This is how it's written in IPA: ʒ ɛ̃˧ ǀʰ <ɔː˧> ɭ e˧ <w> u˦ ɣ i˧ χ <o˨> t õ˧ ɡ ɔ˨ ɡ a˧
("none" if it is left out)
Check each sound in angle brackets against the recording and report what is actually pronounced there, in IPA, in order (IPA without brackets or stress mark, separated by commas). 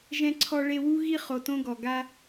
ɔ˧, w, o˨